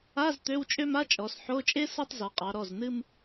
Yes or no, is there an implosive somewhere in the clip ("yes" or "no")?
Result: no